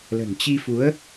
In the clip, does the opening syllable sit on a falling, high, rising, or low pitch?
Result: low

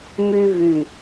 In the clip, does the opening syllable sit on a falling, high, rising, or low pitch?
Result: high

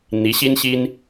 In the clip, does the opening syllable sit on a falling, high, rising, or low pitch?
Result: rising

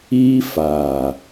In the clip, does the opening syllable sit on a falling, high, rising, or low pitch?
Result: high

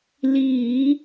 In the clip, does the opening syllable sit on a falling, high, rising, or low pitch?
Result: low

